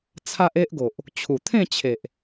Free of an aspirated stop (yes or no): no